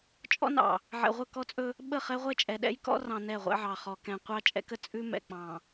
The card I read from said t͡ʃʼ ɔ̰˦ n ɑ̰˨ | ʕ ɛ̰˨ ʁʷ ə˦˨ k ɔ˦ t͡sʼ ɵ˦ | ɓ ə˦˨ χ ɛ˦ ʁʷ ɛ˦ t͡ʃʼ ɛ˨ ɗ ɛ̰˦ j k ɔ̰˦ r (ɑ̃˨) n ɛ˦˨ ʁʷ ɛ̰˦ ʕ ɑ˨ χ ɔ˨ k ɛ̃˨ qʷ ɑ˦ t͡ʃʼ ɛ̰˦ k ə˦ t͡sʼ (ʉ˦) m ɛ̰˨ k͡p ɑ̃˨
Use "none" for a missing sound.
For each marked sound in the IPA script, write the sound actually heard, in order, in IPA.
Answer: ɑ̃˨, ʉ˦

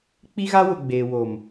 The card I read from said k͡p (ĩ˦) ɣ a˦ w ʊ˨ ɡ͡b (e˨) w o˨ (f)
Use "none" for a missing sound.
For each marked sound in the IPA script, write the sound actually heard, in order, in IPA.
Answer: i˦, eː˨, m

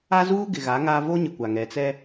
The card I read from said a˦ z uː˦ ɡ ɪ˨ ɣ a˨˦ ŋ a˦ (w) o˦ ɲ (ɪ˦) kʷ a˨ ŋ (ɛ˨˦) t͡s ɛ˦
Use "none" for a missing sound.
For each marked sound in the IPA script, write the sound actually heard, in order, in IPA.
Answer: v, ɪ˨, ɛ˨

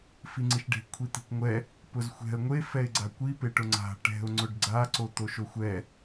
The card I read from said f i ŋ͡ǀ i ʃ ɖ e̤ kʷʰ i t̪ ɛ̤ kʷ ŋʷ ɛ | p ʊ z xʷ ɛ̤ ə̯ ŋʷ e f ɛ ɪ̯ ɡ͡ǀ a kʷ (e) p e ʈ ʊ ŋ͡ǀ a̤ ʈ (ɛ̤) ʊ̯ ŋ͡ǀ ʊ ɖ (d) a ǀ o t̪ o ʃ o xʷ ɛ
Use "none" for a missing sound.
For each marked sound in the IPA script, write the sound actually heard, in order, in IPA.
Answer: i, ɛ̤, ɡ͡ǀ

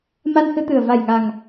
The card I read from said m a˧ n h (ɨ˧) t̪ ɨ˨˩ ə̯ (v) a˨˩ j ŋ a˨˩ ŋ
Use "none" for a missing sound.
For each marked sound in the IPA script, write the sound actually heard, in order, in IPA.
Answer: ɨ˧, v

